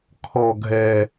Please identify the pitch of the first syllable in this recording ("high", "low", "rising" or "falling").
low